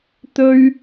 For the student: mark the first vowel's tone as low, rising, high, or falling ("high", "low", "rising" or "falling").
high